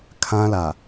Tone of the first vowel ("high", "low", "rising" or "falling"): high